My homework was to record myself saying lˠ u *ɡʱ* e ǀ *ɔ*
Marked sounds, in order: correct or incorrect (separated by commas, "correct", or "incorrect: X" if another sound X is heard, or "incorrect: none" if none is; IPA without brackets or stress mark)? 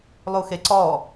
incorrect: x, correct